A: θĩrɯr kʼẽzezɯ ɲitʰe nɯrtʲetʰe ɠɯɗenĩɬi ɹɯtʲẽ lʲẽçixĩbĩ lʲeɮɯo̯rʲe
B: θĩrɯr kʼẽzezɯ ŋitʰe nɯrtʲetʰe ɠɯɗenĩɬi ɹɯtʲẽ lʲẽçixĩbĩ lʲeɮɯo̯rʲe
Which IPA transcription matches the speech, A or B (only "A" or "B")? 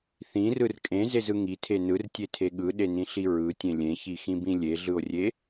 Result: B